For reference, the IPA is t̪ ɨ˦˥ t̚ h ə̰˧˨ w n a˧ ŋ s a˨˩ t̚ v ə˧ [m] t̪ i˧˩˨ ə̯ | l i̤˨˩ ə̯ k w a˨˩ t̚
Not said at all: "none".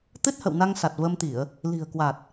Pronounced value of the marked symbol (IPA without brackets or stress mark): m